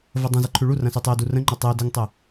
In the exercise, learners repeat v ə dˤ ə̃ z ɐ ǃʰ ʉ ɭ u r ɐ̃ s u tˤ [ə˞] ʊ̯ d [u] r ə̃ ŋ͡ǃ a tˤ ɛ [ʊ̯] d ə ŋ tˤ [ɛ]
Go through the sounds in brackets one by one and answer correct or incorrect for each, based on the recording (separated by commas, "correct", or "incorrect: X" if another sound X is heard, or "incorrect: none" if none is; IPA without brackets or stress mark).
incorrect: ə, correct, correct, incorrect: ə